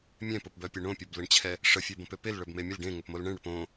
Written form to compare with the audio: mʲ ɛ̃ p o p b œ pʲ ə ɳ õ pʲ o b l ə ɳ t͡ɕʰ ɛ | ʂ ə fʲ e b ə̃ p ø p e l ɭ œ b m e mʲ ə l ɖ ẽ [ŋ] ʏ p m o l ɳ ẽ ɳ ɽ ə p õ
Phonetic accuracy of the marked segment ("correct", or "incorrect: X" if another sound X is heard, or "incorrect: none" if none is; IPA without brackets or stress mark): correct